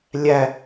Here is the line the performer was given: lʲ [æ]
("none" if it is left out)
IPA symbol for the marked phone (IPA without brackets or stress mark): æ